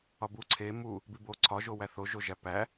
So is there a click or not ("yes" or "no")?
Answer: yes